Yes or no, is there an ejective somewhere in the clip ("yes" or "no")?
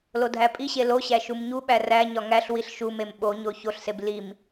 yes